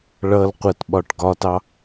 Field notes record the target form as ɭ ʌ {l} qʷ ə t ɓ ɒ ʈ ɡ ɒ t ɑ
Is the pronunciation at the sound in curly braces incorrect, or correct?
correct